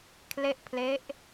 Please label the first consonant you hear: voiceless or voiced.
voiceless